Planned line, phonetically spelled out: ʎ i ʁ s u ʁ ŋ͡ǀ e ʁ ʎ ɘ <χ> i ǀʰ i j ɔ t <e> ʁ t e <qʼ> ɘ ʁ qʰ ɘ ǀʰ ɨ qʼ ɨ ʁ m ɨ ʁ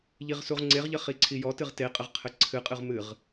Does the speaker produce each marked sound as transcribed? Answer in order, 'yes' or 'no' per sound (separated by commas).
yes, no, yes